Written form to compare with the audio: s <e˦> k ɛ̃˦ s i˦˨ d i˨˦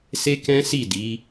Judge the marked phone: correct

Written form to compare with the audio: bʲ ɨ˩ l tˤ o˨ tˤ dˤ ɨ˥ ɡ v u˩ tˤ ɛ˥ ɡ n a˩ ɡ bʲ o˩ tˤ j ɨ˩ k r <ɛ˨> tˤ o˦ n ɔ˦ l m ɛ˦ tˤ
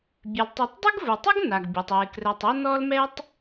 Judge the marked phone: correct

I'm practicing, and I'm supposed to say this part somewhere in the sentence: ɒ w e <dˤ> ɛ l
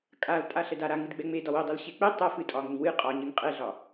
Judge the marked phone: correct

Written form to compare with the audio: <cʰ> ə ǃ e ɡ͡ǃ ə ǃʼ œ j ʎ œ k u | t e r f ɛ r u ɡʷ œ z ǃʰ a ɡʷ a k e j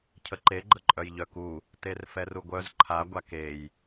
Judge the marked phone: correct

